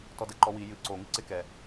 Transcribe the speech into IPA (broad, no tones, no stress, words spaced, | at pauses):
tɔdɛǃɔwi jɨ ǀoŋɨ ǀɪkɛ